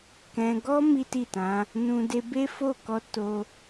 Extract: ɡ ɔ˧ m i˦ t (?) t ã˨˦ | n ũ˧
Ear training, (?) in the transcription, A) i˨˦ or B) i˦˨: B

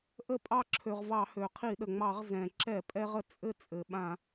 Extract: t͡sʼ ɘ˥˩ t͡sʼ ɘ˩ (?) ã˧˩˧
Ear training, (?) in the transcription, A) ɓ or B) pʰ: A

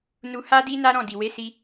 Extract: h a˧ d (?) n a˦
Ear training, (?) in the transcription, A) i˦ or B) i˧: B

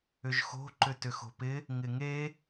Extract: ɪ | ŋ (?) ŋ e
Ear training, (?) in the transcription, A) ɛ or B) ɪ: B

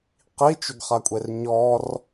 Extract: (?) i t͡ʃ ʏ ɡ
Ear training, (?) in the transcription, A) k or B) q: B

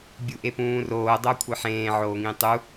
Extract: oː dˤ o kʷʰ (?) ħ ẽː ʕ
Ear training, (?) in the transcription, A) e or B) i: A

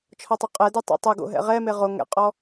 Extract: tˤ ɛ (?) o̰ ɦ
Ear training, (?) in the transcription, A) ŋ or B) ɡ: B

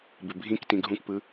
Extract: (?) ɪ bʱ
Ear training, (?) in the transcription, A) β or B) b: B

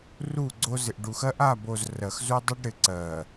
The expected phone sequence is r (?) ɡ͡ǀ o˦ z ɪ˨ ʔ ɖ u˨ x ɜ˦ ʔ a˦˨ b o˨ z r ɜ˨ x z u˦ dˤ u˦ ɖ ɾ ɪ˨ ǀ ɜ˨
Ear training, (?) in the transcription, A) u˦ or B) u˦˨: B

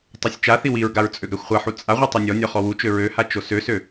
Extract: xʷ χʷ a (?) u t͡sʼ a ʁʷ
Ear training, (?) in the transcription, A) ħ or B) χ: A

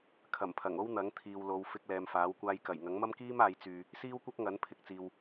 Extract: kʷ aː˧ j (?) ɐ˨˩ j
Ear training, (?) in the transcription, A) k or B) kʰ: A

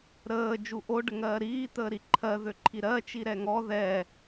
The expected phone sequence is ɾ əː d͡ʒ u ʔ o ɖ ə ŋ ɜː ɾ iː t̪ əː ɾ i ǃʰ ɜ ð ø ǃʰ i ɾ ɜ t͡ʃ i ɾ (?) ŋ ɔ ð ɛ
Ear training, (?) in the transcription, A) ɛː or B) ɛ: B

